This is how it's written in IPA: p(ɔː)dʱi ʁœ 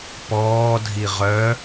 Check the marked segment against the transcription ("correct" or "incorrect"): correct